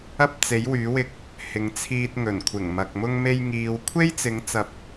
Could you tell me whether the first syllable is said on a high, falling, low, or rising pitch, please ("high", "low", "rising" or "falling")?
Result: high